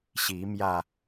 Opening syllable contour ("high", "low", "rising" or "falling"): rising